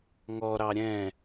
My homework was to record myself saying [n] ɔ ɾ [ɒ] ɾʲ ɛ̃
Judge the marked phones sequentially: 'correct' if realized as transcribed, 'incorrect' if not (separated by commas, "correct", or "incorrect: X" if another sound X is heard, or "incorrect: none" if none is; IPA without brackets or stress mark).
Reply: incorrect: ŋ, incorrect: ɑ